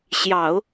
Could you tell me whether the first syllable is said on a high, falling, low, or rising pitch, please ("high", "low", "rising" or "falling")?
low